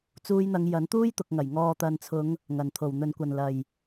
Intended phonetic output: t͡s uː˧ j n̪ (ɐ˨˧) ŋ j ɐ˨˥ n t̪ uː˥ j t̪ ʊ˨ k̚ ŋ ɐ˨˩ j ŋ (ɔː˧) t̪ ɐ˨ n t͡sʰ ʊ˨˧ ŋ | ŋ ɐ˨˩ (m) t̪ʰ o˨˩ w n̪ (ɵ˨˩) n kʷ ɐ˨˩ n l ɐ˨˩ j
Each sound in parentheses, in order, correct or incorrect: correct, incorrect, incorrect, correct

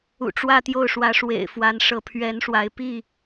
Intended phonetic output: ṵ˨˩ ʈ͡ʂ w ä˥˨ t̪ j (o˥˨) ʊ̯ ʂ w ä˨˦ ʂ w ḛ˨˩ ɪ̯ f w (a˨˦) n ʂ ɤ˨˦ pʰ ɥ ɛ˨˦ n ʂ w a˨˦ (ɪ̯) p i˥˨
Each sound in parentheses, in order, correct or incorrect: correct, correct, correct

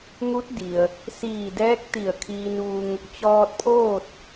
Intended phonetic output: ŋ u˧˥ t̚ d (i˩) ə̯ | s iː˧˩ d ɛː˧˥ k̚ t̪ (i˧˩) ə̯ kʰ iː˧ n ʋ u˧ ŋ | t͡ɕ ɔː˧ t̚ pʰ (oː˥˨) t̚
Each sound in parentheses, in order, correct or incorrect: correct, correct, correct

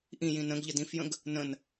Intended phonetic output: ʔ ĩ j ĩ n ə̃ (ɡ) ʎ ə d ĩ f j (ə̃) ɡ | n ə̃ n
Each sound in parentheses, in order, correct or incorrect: correct, correct

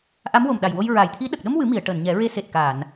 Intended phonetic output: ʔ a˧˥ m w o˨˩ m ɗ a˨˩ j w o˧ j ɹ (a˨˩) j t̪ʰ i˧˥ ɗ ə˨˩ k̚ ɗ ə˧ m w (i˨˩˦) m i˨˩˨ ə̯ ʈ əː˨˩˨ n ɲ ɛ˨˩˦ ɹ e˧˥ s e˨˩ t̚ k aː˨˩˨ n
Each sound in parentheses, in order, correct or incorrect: correct, incorrect

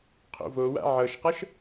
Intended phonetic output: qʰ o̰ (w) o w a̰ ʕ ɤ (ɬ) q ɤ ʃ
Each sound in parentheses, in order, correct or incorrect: incorrect, incorrect

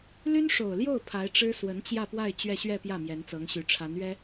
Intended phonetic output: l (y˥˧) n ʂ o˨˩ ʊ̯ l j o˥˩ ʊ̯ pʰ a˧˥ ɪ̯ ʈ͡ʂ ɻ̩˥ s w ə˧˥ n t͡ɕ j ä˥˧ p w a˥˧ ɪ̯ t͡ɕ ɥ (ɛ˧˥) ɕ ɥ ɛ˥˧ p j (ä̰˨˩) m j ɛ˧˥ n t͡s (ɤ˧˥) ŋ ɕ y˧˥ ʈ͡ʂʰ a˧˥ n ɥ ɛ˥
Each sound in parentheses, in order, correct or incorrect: incorrect, incorrect, incorrect, correct

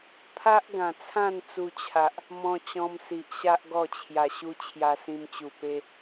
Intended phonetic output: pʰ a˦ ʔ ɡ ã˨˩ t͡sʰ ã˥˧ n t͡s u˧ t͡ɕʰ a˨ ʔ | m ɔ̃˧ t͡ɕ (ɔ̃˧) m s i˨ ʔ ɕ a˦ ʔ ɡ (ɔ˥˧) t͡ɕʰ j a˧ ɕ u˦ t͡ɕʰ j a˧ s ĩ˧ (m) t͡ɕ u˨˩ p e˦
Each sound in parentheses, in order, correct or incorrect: correct, correct, correct

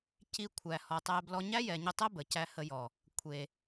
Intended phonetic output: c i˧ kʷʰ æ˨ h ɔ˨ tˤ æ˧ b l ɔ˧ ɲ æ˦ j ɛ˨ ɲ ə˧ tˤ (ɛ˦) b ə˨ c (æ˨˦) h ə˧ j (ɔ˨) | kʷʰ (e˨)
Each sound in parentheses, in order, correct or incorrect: correct, incorrect, correct, correct

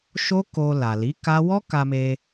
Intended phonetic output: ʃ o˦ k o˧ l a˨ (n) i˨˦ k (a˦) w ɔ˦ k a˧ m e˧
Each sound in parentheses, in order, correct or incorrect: incorrect, correct

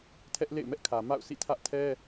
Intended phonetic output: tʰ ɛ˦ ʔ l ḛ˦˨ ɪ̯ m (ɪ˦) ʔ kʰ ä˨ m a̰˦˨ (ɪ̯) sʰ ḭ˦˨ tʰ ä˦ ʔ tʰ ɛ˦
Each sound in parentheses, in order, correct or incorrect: incorrect, incorrect

